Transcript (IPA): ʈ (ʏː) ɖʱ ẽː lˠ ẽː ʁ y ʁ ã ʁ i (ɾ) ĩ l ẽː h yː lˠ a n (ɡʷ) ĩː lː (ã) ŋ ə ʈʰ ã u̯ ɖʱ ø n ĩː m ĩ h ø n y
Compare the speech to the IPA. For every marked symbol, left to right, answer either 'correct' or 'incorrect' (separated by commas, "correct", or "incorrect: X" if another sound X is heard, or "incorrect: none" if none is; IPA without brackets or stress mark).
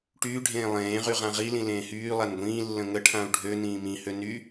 incorrect: yː, incorrect: l, correct, incorrect: ə̃